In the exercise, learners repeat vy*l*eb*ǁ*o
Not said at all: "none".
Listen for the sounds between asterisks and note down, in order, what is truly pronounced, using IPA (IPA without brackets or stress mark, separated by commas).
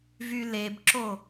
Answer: l, ǁ